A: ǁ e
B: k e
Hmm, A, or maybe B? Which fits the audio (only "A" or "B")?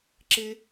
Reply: A